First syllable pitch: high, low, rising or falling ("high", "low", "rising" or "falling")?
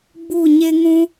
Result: falling